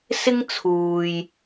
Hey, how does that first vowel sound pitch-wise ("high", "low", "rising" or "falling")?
high